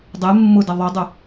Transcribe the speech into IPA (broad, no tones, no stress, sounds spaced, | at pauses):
dˤ e mː ʊ d ə ðˤ o dˤ ʊ